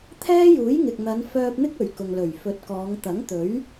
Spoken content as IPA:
t̪ʰ ɛː˥ j uː˨˥ j ŋ ɪ˨ k̚ n̪ ɐ˨˧ n f œː˧ p̚ n̪ ɪ˥ k̚ ɵ˨˩ ɥ k ʊ˨ ŋ l ɵ˨˩ ɥ f ɵ˨˥ t̚ k ɔː˨˧ ŋ t̪ ɐ˨˥ ŋ t̪ ɵ˨˥ ɥ

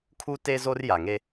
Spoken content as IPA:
kʰ u˦ t e˦ z o˦ r j a˨ ŋ e˦

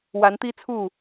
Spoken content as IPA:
w a˨˦ n t̪ i˦ t͡sʰ u˥˨

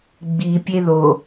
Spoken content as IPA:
ɡ͡b i pʲ e ð o

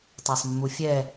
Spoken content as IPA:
tˤ a sˤ mː u fʲ ɛ

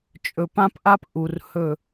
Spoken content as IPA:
t͡ʃʼ ɵ˨ p ã˦ p ʔ a˦ p ʔ u˨ r h ɵ˦˨

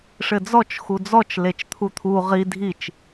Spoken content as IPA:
ʂ ɘ d͡z ɔ t͡ʃ x u d͡z ɔ t͡ʃ l e t͡ʃ t̪ʰ u t̪ʰ u ʁ i dʱ i t͡ʃ

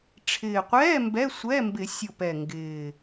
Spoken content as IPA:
ʈ͡ʂʰ ɪː˨˩ qʷ ɛː˧˥˧ m b ɛ˧˥˧ sʷ ɛ˧˥˧ m b ɪ˨˩˦ sʲ o˨˩ p ɛ˨˩ ŋ ɡ ɪː˨˩

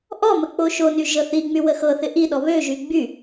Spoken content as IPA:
ʔ ɔ m ə k͡p o ʃ o n y ʒ ɤ θ i ŋ͡m y w ə x ɤ θ ɪ ʔ i ɗ ɔ β ø ʒ y ɡ͡b y

